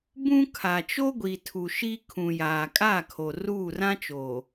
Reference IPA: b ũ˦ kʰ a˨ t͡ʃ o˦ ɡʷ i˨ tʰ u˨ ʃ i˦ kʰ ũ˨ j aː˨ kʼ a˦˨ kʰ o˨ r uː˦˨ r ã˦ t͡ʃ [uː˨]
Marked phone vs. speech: incorrect: oː˨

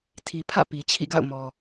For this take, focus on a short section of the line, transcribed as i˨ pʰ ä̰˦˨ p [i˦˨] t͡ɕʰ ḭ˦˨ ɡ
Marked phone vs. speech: incorrect: i˨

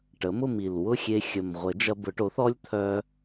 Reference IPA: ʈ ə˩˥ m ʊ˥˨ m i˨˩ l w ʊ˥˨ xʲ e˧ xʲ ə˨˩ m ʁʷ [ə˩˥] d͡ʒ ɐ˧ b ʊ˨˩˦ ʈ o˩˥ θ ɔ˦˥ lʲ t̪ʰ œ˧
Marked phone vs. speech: incorrect: ə˨˩˦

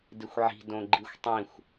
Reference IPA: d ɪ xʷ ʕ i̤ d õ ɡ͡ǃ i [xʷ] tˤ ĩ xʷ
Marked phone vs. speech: correct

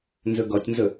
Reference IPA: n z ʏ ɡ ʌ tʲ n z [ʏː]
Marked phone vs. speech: incorrect: ʏ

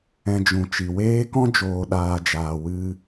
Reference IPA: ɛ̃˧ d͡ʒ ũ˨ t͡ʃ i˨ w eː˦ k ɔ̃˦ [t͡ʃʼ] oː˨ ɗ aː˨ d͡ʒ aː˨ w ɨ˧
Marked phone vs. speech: incorrect: d͡ʒ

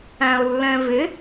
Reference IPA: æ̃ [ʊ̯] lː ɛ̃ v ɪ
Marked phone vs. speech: correct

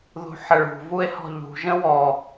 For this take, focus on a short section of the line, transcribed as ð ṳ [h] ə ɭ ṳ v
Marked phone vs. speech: incorrect: ħ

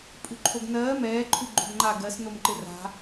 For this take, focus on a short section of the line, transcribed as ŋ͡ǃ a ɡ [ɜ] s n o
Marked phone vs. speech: correct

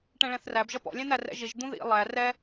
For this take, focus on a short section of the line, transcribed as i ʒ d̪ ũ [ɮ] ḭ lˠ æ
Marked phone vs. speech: incorrect: ð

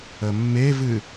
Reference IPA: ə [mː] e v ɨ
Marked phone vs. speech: correct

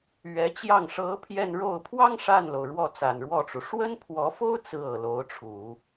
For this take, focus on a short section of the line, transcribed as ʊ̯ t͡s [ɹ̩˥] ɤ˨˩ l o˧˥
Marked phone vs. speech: correct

